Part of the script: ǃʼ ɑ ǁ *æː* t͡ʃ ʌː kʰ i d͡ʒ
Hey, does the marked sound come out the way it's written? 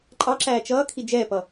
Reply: yes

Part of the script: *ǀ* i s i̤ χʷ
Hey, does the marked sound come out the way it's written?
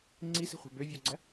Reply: no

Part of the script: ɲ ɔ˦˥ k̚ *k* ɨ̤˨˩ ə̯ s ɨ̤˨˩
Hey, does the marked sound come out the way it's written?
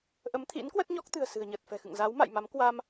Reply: no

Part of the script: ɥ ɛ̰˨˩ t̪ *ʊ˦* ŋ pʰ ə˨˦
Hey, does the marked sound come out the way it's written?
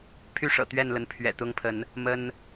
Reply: yes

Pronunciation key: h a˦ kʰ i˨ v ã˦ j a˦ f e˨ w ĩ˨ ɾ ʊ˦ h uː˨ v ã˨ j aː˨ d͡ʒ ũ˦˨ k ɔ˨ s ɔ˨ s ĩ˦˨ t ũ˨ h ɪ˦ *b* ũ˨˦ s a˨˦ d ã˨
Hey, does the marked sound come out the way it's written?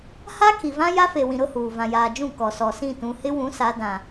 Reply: no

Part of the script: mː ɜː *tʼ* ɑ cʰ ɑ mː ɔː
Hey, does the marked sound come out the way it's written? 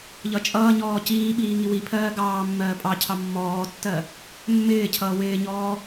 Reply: no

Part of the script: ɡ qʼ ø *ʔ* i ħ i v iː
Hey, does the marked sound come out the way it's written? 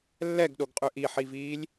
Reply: yes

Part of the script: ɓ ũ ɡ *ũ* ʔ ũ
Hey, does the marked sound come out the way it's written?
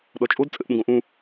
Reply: no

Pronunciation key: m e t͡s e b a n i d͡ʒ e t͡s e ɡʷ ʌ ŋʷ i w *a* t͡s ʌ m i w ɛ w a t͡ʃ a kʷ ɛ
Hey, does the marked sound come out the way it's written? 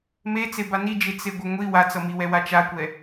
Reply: yes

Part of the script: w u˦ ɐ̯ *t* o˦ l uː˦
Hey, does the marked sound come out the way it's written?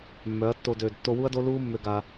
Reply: no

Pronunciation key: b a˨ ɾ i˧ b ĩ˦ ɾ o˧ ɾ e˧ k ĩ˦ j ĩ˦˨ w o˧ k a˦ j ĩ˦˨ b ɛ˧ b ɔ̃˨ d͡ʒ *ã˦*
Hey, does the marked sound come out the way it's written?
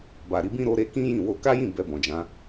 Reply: no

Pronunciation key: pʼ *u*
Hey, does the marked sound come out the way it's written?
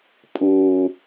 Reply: yes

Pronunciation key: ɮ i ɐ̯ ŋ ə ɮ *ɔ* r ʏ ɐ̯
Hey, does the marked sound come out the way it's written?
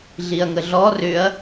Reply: yes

